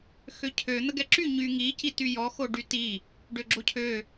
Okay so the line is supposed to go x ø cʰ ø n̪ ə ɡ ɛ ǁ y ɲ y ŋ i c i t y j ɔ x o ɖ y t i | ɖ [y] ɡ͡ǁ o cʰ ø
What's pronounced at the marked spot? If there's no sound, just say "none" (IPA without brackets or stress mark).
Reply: ø